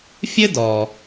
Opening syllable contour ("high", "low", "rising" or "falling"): high